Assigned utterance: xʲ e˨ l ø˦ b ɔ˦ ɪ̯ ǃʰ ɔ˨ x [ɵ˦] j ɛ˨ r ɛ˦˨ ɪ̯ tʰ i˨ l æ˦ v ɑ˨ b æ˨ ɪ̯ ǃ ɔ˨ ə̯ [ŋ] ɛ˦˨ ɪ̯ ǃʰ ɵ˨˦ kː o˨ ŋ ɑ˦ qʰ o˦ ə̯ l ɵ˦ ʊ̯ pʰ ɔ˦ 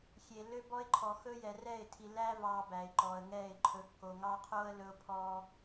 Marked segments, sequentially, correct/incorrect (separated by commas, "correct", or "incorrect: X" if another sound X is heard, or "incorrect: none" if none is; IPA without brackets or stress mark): correct, correct